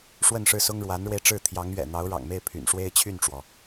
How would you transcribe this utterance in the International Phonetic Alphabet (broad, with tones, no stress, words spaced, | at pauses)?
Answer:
ʂwə˥˧nʂɻ̩˥˩sʊ˥ŋ ɻwa˧˥nɻwe˧ɪ̯ʈ͡ʂɻ̩˥˩ t̪ʰjɑ˧˥ŋɥɛ̰˨˩ n̪ɑ˧˥ʊ̯ɻɑ̰˨˩ŋme˥˩ɪ̯ pʰy̰˨˩nʂwe˥ɪ̯t͡ɕʰy˥˩nʈ͡ʂwɔ˩